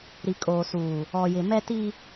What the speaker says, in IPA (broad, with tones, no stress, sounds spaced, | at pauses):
ɾ i˨ kʼ oː˨ s uː˨ | ɔ˨ j ɪ˨ m ɛ˦ t i˦